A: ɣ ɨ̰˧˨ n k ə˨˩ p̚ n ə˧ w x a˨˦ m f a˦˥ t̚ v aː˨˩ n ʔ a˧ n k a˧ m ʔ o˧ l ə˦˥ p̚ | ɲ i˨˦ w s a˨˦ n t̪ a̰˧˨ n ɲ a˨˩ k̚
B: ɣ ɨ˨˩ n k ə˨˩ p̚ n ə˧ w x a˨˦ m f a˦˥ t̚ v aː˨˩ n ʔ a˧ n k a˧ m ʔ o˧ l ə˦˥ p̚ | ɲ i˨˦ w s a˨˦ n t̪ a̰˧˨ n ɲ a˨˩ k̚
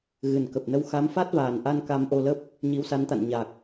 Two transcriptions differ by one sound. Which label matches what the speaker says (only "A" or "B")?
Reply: B